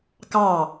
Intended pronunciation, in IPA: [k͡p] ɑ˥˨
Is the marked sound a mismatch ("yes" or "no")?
yes